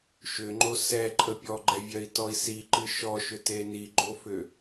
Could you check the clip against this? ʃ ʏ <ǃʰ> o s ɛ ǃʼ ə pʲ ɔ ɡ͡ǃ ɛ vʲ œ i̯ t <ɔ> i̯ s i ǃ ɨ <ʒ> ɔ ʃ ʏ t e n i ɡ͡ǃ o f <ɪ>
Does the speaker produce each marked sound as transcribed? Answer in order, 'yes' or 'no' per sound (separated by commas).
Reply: no, yes, no, no